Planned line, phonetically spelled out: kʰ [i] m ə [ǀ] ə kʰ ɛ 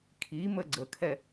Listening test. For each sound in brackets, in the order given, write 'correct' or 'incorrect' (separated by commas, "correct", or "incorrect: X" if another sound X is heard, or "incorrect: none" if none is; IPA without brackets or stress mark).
correct, incorrect: ɡ͡ǀ